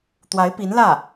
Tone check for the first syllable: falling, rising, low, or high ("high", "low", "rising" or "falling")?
rising